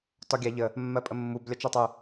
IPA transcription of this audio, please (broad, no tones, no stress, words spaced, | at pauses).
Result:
tɒɡʲa ʎə | mːɜpʼəmːub lʲɒt͡ʃatˤu